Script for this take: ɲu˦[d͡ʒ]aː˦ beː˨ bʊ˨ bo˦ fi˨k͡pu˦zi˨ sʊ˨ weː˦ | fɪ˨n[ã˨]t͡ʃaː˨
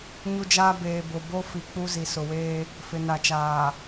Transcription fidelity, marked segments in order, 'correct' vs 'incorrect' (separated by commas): correct, incorrect